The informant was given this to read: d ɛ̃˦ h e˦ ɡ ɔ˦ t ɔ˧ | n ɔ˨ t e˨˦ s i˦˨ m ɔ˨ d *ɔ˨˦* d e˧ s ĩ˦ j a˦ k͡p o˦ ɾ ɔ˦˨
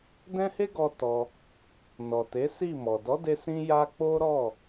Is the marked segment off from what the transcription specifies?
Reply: no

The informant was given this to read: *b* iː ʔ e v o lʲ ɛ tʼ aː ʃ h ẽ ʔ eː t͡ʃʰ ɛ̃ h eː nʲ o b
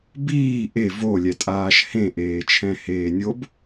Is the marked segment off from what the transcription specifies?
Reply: no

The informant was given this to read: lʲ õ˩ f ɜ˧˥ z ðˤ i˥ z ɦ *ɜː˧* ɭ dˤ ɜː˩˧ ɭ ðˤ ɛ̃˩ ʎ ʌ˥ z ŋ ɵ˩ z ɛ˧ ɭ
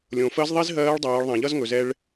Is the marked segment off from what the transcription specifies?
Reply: yes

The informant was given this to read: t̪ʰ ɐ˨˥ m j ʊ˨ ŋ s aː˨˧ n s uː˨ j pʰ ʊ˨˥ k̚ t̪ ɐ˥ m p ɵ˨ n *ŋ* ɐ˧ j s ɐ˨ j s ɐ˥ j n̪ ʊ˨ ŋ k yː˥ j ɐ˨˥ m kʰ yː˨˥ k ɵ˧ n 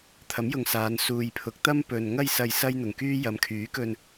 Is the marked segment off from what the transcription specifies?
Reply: no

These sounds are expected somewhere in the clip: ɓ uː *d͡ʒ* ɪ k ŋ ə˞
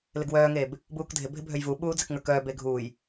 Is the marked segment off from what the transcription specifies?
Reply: yes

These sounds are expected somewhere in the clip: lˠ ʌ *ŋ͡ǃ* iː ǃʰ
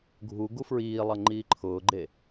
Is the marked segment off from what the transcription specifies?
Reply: no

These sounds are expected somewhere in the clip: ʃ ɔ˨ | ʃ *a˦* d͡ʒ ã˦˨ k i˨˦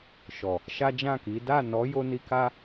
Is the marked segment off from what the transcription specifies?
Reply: no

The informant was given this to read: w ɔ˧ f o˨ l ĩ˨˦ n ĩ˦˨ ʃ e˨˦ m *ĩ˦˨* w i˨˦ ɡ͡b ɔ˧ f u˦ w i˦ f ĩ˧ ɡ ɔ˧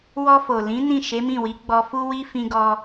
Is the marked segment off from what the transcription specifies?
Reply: no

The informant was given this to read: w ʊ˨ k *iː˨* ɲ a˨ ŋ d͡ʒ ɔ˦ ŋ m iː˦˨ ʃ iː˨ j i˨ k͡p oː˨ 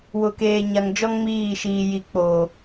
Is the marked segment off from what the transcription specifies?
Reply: yes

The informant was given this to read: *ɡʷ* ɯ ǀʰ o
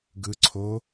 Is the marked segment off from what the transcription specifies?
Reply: yes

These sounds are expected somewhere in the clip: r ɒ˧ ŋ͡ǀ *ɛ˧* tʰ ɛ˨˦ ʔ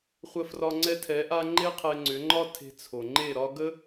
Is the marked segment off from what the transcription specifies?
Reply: no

